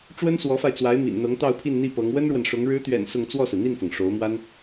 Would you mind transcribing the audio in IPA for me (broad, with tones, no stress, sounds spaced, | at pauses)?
ʈ͡ʂ w ə˥ n s w ɔ˧˥ f a˧ ɪ̯ t͡s w a˧˥ ɪ̯ m ḭ˨˩ n n̪ ɤ˧˥ ŋ t̪ ɑ˥˧ ʊ̯ pʰ i˥˧ n n̪ i˥˩ p ɤ˧˥ ŋ w ə˥ n ɻ w ə˨ n ʂ ʊ˧˥ ŋ ɻ ɻ̩˧˥ t̪ ɥ ɛ̰˨˩ n s ʊ˥˧ ŋ t͡s w ɔ˥˩ s ɹ̩˩ n̪ i˥˩ n f ɤ˩ ŋ ʂ o˧˥ ʊ̯ m w a˥ n